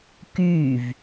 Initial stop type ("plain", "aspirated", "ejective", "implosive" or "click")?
plain